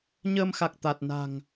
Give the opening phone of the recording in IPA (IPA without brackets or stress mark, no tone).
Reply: ɲ